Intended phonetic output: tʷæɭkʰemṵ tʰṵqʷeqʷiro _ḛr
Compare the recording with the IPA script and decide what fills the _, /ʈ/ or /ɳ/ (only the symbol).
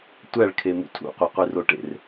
ʈ